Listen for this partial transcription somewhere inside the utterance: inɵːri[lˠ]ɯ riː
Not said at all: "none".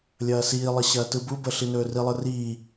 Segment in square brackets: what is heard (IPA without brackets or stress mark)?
lˠ